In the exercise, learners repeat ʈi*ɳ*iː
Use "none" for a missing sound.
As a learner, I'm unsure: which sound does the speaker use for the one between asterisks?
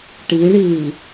ɳ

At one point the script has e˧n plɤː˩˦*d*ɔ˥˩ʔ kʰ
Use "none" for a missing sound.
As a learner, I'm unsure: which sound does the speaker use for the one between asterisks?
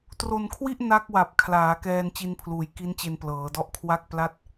d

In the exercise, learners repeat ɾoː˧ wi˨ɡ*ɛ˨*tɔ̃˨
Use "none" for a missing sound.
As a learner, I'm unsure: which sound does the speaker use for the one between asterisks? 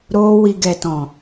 ɛ˨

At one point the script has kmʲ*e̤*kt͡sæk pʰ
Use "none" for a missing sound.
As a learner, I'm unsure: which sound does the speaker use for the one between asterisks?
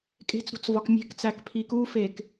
e̤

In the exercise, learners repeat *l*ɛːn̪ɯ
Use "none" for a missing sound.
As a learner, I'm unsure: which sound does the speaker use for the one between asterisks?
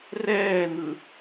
r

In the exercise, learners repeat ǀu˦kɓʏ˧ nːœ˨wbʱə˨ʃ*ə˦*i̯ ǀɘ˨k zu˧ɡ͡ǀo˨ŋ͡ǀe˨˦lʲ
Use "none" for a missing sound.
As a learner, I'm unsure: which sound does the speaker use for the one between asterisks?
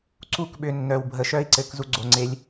œ˦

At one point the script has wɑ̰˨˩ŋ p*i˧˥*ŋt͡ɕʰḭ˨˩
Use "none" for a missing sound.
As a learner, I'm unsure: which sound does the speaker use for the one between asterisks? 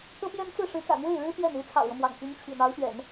i˧˥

